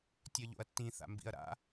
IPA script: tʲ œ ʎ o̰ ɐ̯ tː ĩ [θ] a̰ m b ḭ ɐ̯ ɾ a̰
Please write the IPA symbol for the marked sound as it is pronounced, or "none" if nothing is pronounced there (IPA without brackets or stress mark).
θ